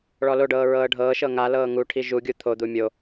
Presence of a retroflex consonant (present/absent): present